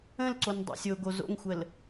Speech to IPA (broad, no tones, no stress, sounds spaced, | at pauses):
ə̃ l ǀ o n dˤ ɛ̰ sʲ o ɡ o z o̰ ŋ xʷ ə l